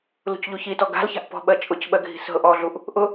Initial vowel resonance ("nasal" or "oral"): oral